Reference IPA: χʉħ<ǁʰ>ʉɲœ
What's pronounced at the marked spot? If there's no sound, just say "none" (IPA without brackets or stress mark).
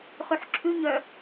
ǁʰ